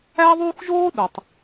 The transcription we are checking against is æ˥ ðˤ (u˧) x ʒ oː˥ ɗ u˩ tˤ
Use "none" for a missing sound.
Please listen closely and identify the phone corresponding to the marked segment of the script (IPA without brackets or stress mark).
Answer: u˥